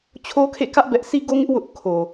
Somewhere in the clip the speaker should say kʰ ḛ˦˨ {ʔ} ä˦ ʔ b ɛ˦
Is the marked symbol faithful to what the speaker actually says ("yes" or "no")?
no